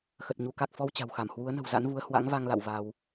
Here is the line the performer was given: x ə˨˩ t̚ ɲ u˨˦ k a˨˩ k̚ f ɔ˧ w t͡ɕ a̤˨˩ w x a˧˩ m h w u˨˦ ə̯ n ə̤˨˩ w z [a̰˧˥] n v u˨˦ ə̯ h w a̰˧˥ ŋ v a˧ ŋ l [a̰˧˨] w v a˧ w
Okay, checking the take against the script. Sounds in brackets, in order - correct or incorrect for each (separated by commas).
correct, correct